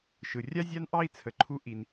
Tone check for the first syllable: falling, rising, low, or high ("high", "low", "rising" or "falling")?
low